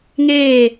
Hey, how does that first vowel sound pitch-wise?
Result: falling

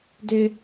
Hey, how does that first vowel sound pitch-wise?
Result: high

